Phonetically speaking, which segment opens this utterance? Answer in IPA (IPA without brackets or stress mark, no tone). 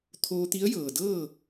t̪ʰ